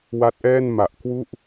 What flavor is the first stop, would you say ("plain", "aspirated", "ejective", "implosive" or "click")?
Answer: plain